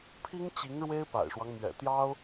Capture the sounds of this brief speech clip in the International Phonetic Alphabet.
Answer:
pʰi˥ŋt͡ɕi˧˥ŋ ɻwe˥ɪ̯pa̰˨˩ɪ̯ʂwɑ˦ŋ mɥɛ̰˨˩t̪jɑ˥ʊ̯

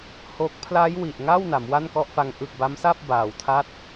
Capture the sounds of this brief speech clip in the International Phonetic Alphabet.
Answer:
ho˦˥k̚ pʰla˦˥j wi˨˩ʔŋa˥˩w na˩˦mwa˥˩nkɔ˥˩ʔfa˦˥ŋ ʔɯ˨˩k̚ba˦˥msa˥˩p̚ baː˨˩wtʰa˥˩t̚

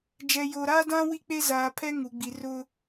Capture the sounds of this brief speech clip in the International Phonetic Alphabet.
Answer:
d͡ʒɛ˨jo˨ɾaː˦dã˦ wi˦k͡pe˦zaː˨pʰɛ˦ ŋu˨ɡ͡bi˨rʊ˦

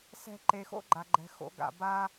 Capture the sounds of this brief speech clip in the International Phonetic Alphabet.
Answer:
sɛ̤˧ ǃe˨xo̰˦ɡ͡ǃa˨ ɡ͡ǃɛ̤˨xo̰˨˦ɡa̰˨ba˦

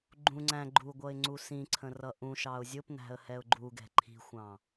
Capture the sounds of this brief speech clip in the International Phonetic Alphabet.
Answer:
ɡ͡ǃũ ŋ͡ǀæ̃ ɡ͡ǃuɡʷʌɪ̯ ŋ͡ǀusĩǀʰə̃ rʌʔũʃɑʊ̯ zʲʊpnæ̤ə̯ hɛʊ̯ɡ͡ǃuɡɛ̤ ǃʰi̤xʷɑ̃

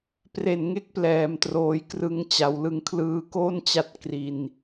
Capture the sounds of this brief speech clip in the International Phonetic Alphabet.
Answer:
pre˨˩nŋe˦˥k̚plɛː˩˦m troː˩˦jkrɯ˧ŋt͡ɕa˩˦wlɯ˧ŋ kʰlɯː˧ko˥˩nt͡ɕa˦˥t̚ kri˧n

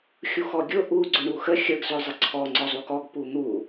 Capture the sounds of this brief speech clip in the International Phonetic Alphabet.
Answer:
xʲuxɔɡʲʊ ʔu ɡ͡ǀʊɳuxə xʲəɡ zʊzˤəǀʰɔ ŋ͡ǀɔzˤukɔɡ pun̪u

